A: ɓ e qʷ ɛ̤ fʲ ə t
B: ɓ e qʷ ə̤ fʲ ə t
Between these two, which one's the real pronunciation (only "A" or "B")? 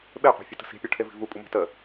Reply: A